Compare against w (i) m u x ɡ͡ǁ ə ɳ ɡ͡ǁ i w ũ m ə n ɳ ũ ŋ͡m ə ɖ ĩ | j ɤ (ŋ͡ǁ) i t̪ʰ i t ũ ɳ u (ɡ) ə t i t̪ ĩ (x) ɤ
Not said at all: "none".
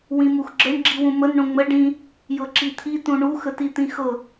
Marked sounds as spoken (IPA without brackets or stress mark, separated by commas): ĩ, ǁ, x, x